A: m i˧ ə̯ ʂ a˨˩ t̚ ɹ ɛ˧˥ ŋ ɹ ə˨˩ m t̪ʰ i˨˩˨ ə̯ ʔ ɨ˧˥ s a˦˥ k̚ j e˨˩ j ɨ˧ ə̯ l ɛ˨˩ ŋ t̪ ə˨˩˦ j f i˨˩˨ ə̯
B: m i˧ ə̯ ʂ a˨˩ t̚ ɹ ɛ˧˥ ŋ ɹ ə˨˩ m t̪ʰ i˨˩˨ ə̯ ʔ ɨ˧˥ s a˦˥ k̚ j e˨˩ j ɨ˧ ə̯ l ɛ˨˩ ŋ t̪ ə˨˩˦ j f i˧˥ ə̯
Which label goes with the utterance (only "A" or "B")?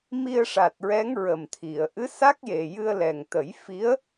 B